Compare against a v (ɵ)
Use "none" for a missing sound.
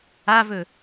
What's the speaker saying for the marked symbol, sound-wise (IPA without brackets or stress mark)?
ɵ